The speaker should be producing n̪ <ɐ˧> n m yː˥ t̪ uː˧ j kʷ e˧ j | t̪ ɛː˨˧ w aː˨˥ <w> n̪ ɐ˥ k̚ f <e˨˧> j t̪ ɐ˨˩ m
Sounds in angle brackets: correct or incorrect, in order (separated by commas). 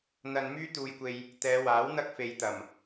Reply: correct, correct, correct